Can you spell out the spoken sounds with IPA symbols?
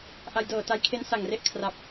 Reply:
ʔa˧jdɤː˨˩ta˧jkʰe˦˥n sa˨˩ŋre˦˥ʔ kʰra˦˥p̚

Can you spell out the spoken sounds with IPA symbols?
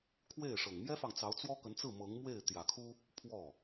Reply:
kʰwe˥˩ɪ̯ʂɤ˨˩ŋ mjɛ˥fɑ˨ŋt͡sɑ˧˥ʊ̯ t͡swɔ˥kə˧˥nt͡sɹ̩˥˩ mɤ˧˥ŋmwe˥˩ɪ̯ t̪jä˨˩kʰu˥ | pʰwɔ˥˩

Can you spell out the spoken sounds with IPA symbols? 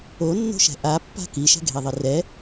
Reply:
onːo̤ʃɛ̤ ʔapːa̤ kiʃɛ̤ɡʱeðˤɪ rɛ

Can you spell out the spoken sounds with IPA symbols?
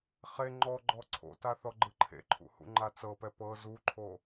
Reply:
χe ŋ͡ǃɔɡ͡ǃɔ ǀʰo̰ta θɔɡ͡ǃɯǃʰḛǃʰṵ hṵŋ͡ǃat͡sɤpɛ pɤ zuǃʰo

